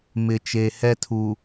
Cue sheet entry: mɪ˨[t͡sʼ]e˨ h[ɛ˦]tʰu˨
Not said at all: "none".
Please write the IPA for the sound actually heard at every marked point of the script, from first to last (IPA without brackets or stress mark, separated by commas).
t͡ʃ, ɛ˦